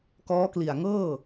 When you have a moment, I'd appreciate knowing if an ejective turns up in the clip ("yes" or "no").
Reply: no